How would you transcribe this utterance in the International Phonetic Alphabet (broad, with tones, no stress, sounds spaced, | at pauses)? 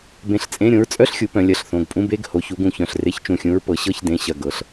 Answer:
b ẽ˧˩ ɬ t͡sʼ ẽ˧˥˧ ɾʲ õ˩˥ ɹ t͡sʼ œ˧˥˧ ɬ xʲ u˩˧ p œ̃˩˧ lʲ ɐ˩˧˩ ɬ θ õ˩˧˩ ɡ pʼ ũ˧˥˧ b e˧˥˧ ɡ h o˩˧ ç u˩˥ ɡ ũ˧˩ ç œ̃˧˩ ɬ r e˧˥˧ ç t͡ʃ ũ˧˩ xʲ ũ˧˥ ɹ p ɤ˩˥ ɕ ɤ˧˥˧ ç d ẽ˩˧˩ ɕ ɐ˧˩ ɡ ɤ˩˧ ɬ